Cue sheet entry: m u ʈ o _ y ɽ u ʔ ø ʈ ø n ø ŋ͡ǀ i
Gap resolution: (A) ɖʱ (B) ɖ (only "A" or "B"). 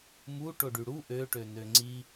B